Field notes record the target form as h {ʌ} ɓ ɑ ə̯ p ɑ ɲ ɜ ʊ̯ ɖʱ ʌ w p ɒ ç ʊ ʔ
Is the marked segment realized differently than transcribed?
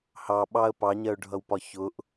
yes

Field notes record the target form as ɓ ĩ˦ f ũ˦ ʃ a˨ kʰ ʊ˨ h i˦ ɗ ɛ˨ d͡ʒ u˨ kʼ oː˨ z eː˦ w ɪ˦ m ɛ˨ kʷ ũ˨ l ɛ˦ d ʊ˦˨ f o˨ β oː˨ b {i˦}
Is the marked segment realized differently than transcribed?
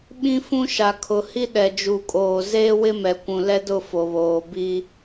no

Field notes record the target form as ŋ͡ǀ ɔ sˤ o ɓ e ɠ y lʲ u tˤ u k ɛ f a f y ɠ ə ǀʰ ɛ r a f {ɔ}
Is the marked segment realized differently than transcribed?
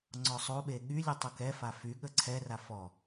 no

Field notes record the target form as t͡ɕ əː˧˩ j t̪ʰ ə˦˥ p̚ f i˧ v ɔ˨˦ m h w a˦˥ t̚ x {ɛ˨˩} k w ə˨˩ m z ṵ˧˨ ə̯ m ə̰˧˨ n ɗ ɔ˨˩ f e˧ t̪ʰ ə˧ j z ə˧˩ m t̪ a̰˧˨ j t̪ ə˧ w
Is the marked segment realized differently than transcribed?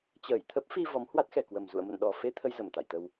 no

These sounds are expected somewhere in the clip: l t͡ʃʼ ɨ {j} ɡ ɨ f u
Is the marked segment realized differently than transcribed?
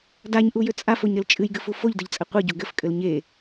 no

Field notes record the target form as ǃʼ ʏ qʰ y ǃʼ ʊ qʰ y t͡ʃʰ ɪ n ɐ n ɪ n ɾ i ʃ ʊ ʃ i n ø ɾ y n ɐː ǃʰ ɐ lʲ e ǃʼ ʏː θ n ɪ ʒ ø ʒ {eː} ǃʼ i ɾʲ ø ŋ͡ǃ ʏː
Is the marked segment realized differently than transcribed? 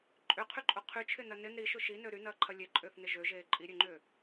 no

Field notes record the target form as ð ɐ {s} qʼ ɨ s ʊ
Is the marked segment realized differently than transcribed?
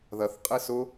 yes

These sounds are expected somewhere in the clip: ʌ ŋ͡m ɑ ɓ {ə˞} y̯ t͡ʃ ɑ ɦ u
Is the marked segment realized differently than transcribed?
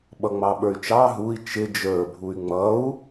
no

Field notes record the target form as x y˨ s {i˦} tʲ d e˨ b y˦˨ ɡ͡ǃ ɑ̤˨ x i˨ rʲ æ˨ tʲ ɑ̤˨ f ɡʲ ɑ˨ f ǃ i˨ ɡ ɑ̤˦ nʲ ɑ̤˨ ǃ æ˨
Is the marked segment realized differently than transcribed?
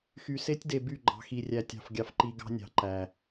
yes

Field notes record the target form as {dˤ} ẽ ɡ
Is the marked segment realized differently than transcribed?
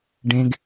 yes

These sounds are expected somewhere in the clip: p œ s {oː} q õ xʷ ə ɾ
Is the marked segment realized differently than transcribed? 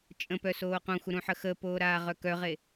no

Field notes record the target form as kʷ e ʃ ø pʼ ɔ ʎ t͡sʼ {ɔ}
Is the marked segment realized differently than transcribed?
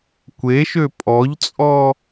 no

